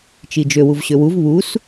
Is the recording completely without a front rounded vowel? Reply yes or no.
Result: no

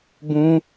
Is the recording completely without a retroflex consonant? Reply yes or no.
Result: yes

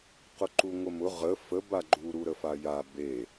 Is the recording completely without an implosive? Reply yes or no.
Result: yes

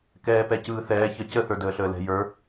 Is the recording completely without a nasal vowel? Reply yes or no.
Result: yes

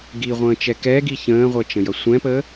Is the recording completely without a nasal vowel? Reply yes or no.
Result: no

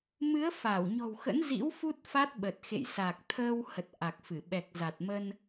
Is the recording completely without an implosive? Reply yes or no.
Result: no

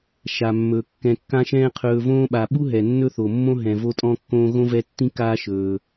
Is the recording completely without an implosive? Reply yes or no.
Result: no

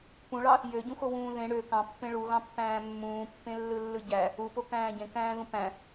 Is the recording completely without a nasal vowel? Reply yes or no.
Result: no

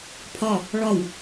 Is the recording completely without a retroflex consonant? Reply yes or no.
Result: no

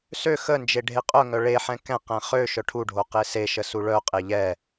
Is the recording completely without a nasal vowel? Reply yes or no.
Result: no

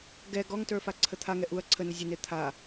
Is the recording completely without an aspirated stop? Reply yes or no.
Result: no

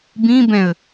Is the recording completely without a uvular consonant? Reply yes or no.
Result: yes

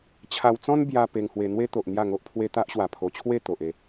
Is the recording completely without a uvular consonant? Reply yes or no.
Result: yes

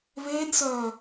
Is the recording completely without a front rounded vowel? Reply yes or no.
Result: no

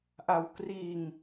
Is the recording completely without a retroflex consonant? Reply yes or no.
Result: yes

